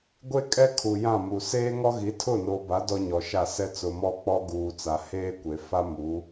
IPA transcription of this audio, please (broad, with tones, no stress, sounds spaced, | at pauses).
ɡʷ e˦ kʼ ɛ˦ kʰ u˨ j ã˦˨ m u˨ s eː˦ ŋ ɔ˦ ɣ i˨˦ tʰ ʊ˦˨ n o˨ b a˨˦ d ɔ˦ ɲ ɔ˨ ʃ a˦˨ s ɛ˦ t͡s ʊ˨ m ɔ˦ k͡p ɔ˦ ɡ uː˨ t͡s a˨ h eː˦ kʷ e˨ f a˦ m u˨˦